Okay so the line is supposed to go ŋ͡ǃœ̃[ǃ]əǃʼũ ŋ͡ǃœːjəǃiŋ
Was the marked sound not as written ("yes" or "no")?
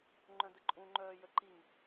yes